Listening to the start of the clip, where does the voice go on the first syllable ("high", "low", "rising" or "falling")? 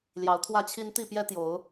rising